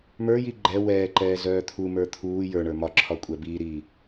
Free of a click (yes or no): no